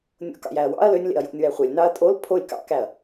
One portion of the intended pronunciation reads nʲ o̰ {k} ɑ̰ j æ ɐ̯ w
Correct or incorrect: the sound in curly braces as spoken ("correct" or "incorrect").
correct